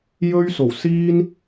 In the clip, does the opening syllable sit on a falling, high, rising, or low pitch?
high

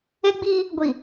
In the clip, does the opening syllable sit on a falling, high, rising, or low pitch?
high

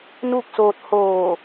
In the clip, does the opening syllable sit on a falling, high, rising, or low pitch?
falling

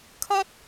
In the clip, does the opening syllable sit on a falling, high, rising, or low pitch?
high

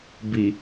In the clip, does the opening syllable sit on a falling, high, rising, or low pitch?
low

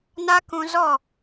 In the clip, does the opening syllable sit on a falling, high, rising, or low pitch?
high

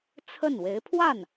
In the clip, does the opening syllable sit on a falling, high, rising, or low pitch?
falling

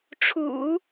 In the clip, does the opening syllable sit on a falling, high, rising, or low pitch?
low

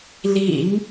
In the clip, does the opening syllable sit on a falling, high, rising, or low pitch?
low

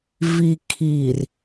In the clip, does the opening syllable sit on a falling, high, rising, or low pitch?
low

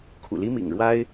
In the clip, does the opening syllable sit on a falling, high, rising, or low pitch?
low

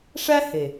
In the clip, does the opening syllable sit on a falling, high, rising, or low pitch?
high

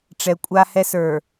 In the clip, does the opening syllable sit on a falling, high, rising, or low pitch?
low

